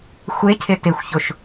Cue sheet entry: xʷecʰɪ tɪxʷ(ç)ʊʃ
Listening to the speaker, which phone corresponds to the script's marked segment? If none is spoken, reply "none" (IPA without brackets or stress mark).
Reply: ç